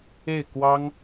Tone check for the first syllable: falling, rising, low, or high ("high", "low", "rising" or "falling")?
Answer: falling